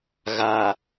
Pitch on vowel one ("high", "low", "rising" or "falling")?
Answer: low